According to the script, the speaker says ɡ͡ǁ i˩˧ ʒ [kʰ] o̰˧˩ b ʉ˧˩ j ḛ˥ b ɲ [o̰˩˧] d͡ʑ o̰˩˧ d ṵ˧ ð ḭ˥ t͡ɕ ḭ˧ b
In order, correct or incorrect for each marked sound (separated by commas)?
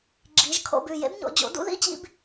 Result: correct, correct